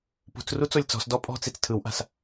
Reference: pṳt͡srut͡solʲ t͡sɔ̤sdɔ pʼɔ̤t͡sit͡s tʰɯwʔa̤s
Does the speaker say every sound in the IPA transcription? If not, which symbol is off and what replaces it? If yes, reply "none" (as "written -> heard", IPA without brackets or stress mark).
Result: none